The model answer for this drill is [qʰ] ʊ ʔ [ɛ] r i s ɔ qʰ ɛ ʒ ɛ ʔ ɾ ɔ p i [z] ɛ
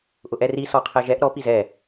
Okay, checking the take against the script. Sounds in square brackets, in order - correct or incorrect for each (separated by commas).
incorrect, correct, correct